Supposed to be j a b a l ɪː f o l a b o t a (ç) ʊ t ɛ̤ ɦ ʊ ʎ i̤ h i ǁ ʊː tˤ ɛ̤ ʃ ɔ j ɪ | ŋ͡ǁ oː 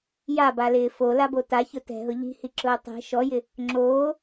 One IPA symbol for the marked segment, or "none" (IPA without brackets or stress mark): ç